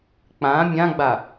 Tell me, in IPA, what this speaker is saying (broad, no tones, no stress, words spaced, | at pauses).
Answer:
k͡pã mʲãɡ͡ba